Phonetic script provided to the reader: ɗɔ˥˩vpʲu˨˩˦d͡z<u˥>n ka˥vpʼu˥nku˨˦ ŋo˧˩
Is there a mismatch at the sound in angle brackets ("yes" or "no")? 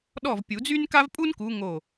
yes